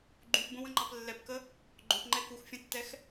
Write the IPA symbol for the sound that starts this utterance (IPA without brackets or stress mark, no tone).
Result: ɡ͡ǃ